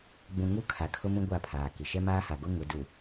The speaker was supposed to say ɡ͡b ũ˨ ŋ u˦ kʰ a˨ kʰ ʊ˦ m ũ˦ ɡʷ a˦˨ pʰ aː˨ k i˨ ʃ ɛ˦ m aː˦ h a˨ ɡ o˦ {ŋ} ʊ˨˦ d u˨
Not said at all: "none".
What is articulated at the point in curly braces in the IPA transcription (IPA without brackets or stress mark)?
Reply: ŋ